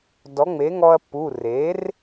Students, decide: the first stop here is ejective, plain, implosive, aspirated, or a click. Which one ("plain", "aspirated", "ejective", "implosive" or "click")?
plain